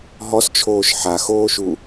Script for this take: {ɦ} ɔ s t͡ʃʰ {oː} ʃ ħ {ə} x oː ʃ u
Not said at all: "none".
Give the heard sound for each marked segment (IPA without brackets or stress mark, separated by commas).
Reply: ɦ, oː, a